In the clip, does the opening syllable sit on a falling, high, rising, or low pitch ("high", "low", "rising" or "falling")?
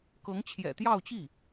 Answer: rising